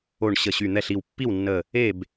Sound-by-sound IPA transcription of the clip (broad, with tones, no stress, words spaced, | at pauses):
o˧˩ɳ ɕə˧˩ɕy˧˩n̪ɛ˥˨ɬ i˧˩wpːi˥˨wnːə˧˩ | e˥˨b